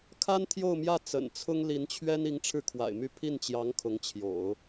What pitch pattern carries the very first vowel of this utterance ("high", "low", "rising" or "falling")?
high